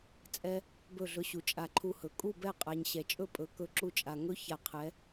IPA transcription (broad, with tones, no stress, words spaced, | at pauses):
t͡sʼɛ˦ | bɵ˦˨ɮɵ˧ɕu˨ t͡ʃʼa˧ǃʰu˧hɵ˨ kʼu˦˨bɛ˦˨qʼa˨ɲ ɕɛ˨t͡ʃʼɵ˦pʼɵ˨˦ kɵ˧ ǁu˧t͡ʃʼa˨ ŋɵ˦ ça˧qʰɛ˨˦